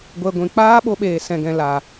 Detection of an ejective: absent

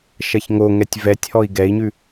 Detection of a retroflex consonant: absent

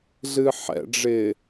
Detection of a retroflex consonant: present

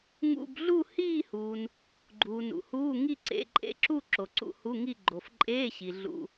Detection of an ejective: present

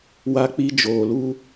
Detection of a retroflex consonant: absent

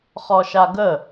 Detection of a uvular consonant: present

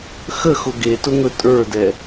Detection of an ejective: present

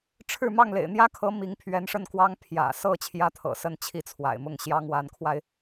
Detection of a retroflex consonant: present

